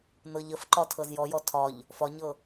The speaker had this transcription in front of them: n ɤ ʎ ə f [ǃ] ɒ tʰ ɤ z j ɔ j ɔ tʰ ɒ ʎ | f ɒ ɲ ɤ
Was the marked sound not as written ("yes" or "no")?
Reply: no